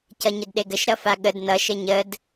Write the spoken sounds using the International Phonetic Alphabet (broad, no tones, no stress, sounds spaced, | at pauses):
c ʌ ɲ ə d ɗ e ɡ ə ʃ ɾ ʌ f a ɠ ə d n ʌ ʃ ə ɲ ə d